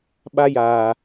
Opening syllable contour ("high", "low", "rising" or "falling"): high